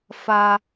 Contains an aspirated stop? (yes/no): no